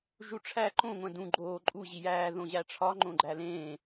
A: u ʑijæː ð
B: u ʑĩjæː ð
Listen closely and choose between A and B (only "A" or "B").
A